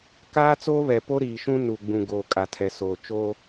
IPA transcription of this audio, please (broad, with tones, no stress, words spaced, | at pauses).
kaː˦t͡soː˦βɛ˨po˦ ɾiː˨ʃũ˦ nu˨ɡ͡bũ˨ ɡoː˨kʼa˨tʰɛ˨soː˨ t͡ʃo˦